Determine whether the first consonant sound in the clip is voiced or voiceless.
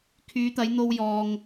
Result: voiceless